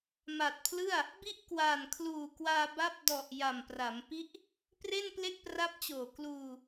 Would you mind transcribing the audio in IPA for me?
m a˨˩ t̚ pʰ l ɯ˥˩ a̯ | b i˥˩ ʔ k w aː˨˩ n kʰ l uː˨˩ k w aː˧ b a˦˥ p̚ d ɔ˨˩ ʔ j a˨˩ m p r a˩˦ m p i˦˥ ʔ | p r e˥˩ n p l e˥˩ k̚ p r a˦˥ p̚ t͡ɕ oː˨˩ k l uː˧

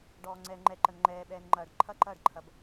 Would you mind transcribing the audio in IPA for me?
ɖ ɔː ŋ͡ǀ ɛː ŋ͡ǃ ɛ ǃ ə n ŋ͡ǃ ɛː ɓ ɛː n ŋ͡ǃ ɐː ɖ ǃʰ ɐ ǃ ɐː ɖ ǃʰ ɐ b

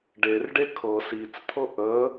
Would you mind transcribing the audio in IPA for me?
ɖ e r ɖ e kʰ ɤ s i t͡s t̪ʰ ɤ ʔ ə

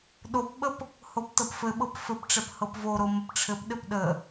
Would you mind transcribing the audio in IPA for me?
ɗ o p ɓ ə p | h o p t ɤ p f ɘ ɓ ɤ p f ɘ p ʈ͡ʂ ɛ p h ɤ p v o ɾ o m ə p ʈ͡ʂʰ ɘ p ɗ ɘ p ɗ ə

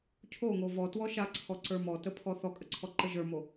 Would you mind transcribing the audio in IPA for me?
cʰ o ŋ o v ɔ t w ɔ ʃ a ǀʰ ɔ ǀ ə˞ m ɔ t ə pʰ ɔ θ ɔ kʼ ə ǀʰ ɔ ǃ ə ʒ ə˞ m o

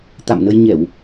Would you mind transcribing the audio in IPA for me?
t̪ a̰˧˨ m n ə˧ j ɲ ɛ˧˩˨ w

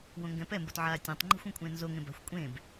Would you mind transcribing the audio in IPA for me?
w õ ŋ ɡ ɛ̃ p ɛ m b o t ʕ aː tʲ ẽ tˤ ŋ͡ǃ i̤ xʷ ã kʷʼ ẽ n z o ŋ ẽ b a̤ xʷ kʷʼ ẽː b

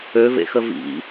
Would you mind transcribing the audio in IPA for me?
ø v ḛ x ə v ḭ

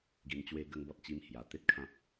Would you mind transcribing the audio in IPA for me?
ɡ i˧ n t͡ɕ w e˦ ɡ ə˦ ŋ b ɔ˦ t̚ t͡ɕ i˦ m h j a˨˩ t̪ e˦ t̚ kʰ ã˦ p̚

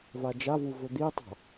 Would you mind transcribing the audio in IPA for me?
v a d͡ʒ a v u v ɵ d̪ i tˤ a̤

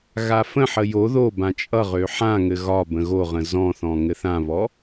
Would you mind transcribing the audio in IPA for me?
ɣ a f ə̃ ħ ə j o ð o b ã t͡ʃʼ ʌ ʁ ø ħ ã ŋ ɘ ɣ ɒ b ə̃ ɣ o ʁ ə̃ z ɔ̃ θ ɔ̃ ŋ ɘ θ ã β ɔ

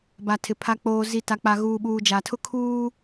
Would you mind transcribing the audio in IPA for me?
b a˨ tʰ ɪ˨ pʰ a˨ k͡p oː˨ z i˨ t a˨ k͡p a˨ ɣ uː˨ ɓ uː˨ d͡ʒ a˨ tʰ ʊ˦ kʰ uː˦

